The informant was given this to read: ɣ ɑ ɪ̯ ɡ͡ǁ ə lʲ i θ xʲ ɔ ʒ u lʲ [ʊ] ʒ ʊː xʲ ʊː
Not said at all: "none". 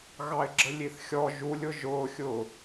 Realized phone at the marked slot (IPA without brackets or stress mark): ʊ